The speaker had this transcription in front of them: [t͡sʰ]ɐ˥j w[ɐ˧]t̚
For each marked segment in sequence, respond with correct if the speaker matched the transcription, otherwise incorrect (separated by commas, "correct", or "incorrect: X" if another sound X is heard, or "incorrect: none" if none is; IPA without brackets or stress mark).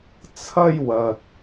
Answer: correct, correct